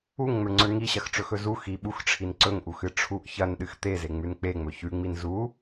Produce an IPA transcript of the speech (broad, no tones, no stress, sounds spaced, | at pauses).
u ŋ ŋ͡m ɵ ɳ ŋ͡ǀ ɵ ɳ ŋ i ɕ ɐ x ʈ͡ʂ ɵ x ɵ z u x i ɓ u x ʈ͡ʂʰ i n ǀ ɵ ŋ ʔ u x ɨ ʈ͡ʂʰ u ʔ ç ɐ n ɗ ɨ x t̪ e z e ŋ͡m ʉ n k͡p e ŋ͡m ɵ ç ʉ ŋ͡m i n z u